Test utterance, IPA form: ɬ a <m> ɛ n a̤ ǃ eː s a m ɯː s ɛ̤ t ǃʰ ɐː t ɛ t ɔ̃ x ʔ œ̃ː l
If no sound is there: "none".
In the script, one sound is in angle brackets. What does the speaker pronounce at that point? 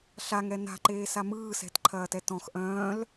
ŋ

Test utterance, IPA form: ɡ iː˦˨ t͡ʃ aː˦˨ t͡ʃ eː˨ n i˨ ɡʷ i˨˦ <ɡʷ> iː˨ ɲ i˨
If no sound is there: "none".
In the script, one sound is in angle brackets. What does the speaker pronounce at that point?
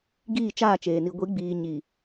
ɡ͡b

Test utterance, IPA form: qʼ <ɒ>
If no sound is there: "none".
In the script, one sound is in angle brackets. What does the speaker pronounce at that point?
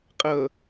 ʌ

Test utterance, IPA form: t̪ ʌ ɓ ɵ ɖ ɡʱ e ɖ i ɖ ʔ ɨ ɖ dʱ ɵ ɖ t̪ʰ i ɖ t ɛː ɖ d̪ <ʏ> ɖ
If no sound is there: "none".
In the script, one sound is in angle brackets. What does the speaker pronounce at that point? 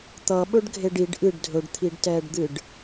ɨ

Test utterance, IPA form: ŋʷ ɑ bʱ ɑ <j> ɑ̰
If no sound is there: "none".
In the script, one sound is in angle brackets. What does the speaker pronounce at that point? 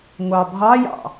j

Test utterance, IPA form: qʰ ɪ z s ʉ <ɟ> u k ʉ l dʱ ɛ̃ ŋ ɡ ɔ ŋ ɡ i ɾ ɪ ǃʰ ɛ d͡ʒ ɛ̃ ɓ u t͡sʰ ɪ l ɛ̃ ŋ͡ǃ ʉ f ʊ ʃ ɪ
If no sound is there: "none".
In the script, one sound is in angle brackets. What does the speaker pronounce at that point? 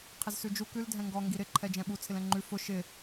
d͡ʒ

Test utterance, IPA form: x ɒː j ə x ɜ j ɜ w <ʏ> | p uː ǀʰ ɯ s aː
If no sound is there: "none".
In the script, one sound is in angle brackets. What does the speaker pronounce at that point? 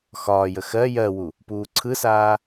u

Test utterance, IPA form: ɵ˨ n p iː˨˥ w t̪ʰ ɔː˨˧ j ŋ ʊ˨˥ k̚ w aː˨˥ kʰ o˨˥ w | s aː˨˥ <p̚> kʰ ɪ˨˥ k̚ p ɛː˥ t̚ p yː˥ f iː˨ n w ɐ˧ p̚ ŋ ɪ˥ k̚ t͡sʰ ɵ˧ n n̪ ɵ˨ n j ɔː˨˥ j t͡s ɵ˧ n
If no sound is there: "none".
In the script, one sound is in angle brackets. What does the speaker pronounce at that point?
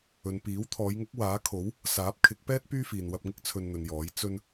p̚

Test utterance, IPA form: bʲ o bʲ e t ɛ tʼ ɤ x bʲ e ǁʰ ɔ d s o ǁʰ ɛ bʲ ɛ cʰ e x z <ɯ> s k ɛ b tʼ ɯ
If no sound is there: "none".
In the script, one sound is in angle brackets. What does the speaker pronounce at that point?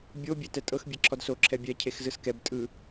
ɯ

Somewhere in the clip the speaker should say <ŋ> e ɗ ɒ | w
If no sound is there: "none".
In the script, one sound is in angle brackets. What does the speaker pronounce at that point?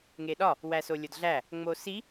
ŋ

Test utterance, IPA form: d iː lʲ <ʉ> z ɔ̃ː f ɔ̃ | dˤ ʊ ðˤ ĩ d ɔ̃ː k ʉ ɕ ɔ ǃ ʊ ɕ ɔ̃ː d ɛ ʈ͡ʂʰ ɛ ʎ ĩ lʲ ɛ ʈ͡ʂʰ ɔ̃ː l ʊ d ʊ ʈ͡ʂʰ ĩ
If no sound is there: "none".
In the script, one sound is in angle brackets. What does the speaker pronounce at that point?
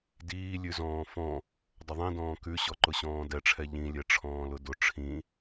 ʉ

